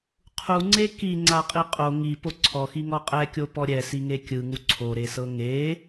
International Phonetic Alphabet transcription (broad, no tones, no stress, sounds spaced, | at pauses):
qʰ u ŋ͡ǀ e k i ŋ͡ǀ a qʼ i qʼ o ŋ i p o ǀʰ ɔ x i ŋ ɔ qʼ ɛ kʲ o p ɔ ɾʲ ɛ s i ŋ e kʲ ɯ ŋ u ǀʰ o ɾ e s ɤ ŋ e